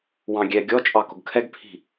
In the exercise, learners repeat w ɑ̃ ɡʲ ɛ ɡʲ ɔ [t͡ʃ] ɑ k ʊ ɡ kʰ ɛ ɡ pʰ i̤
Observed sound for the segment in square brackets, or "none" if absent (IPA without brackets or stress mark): t͡ʃʼ